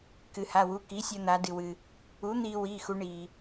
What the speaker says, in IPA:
k ɨ˩ h a˩˧˩ w u˩˧˩ k i˩˥ sʲ ɐ˧ n̪ a˩˧ d ɨ˩ w ɨ˩ | u˩˥ n̪ iː˧ w iː˩˧˩ x u˩˧ ɳ iː˩

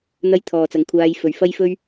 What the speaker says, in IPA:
n̪ ɐ˧ j t̪ʰ ɔː˨ t͡s ɐ˨˧ ŋ kʷʰ aː˧ j f ɵ˨ ɥ f ɐ˥ j f ɵ˥ ɥ

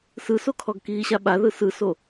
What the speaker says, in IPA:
s ɯ s o kʰ ɔ ɡ k iː ɕ a ɓ a ð ɯ s ɯ s o

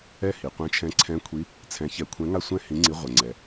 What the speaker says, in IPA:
ɛ˦˨ h i˩ qʷ ɛ̃˨˦ t͡ʃʰ ɛ̃˨˦ ǀʰ ɛ̃˨˦ kʷʰ i˨˦ | t͡sʰ ɛ̃˨˦ ç ɛ˨˦ kʷʰ ɛ̃˨˦ ŋ a˦˨ sʷ ɛ̃˦˨ h ĩ˨˦ ŋ͡ǀ i˨˦ ʁʷ ɛ˩ ŋ͡ǀ ɛ˩

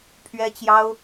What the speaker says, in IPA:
pʰ ɥ ɛ˥ t͡ɕ j ɑ˥ ʊ̯

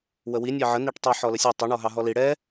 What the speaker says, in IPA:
w ə w i nʲ ɑ ʕ ə n i ʈ tˤ ʌ ħ ɔ l ə sʲ ʌ tˤ ə ɳ ɔ ɦ ɑ ɦ ɔ l i ɽ ɛ

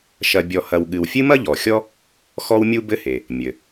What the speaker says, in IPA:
ʃ ɐ˨ bʲ ɔ˨ h ɐ˨ w ɠ ɨ˨ w fʲ ɨ˥ m ɐ˥ ʎ ɔ˩ xʲ ɔ˥ | x ɔ˦ w mʲ u˦ b ɘ˦ h e˩ | mʲ ɘ˩

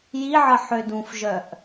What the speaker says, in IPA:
j i ʕ ə ħ ø d ũ f ʒ œ ʔ

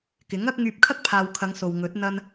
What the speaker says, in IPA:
k ɪ˨˥ ŋ ɐ˥ k̚ ŋ yː˧ p̚ kʰ ɐ˥ k̚ pʰ aː˨ w kʰ ɐ˨˧ ŋ s o˨ w ŋ ɵ˨˥ t̚ n̪ ɐ˥ n

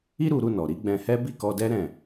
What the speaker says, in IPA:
i˦ ɾ u˧ ɾ u˧ n ɔ˨ ɾ i˨˦ ɡ͡b ɛ̃˧ h ɛ˦ b i˦˨ k ɔ˧ d ɛ˦ ɾ ɛ̃˦˨

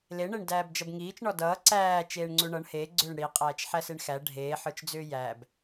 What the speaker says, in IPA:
l e ɳ e ɳ d æː b d͡ʒ ʌ b ŋ iː t͡ʃ ɳ ɔ d ʌː ǀ æː t͡ʃ eː ɳ ŋ͡ǀ u ɳ ʌ ɳ h eː ɡ͡ǀ ʏː ɳ ɽ i qʼ æː t͡ʃ ħ æ s e ɳ x æ ɖʱ eː ħ ə˞ t͡ʃ d͡z ʏː j æ b

